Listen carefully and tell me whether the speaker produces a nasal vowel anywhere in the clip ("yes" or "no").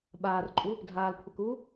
no